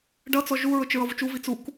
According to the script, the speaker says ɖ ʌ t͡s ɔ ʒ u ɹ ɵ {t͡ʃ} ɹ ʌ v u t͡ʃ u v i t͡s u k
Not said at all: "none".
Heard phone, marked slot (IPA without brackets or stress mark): t͡ʃ